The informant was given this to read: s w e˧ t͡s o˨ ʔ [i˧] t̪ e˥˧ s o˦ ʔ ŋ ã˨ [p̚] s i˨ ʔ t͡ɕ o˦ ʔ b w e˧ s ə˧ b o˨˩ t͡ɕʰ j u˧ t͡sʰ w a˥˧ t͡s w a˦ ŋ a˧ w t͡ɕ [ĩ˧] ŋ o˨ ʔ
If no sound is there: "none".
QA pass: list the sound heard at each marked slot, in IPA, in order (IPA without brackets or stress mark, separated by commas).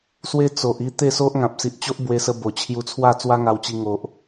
i˥˧, p̚, i˧